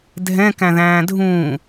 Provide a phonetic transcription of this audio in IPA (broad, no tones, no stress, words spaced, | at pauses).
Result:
dʱɛ̃ kæ̃ðæ̃ːdʱũː